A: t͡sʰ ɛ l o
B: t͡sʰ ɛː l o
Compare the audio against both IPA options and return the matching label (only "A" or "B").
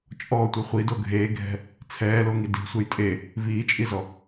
B